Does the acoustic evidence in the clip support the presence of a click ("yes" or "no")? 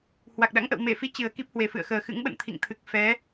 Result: no